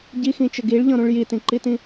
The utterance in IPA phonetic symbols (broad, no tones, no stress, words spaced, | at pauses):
ɟixĩt͡ʃə ɡiɭʎɔ̃ɾũɭ jitĩǃitĩ